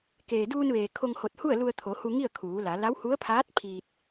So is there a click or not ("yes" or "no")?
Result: no